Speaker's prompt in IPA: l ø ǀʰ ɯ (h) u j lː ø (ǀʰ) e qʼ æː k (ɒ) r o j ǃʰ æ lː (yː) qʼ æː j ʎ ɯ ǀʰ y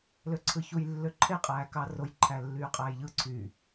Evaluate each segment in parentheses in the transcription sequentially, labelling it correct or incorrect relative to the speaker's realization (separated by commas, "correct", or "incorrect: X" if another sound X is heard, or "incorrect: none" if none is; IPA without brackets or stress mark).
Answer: incorrect: ç, incorrect: ǃʰ, incorrect: ɑ, correct